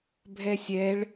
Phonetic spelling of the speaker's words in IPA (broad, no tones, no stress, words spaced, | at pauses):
bʱɛsʲɛɭ